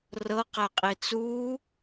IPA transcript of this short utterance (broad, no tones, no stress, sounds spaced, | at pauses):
r ɤ q æ qʼ e t͡s u